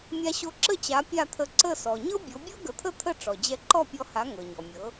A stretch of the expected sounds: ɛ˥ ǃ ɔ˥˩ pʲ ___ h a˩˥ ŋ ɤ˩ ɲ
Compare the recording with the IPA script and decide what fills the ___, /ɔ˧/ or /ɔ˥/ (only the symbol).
ɔ˧